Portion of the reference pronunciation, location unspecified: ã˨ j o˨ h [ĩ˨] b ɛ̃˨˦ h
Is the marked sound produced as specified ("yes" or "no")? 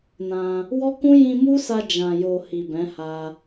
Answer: no